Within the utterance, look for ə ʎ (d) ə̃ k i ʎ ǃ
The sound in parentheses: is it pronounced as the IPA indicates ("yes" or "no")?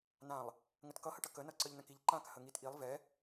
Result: no